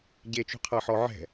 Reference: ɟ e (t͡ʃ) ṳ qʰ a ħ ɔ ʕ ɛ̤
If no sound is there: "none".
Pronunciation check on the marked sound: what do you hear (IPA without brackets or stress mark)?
t͡ʃ